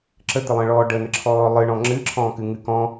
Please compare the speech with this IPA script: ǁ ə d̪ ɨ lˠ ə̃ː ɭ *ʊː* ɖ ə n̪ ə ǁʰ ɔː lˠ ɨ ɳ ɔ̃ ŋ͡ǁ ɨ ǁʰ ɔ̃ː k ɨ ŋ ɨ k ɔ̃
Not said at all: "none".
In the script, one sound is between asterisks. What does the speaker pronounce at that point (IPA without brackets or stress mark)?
ɔː